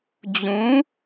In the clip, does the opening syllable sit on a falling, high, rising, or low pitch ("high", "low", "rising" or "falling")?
rising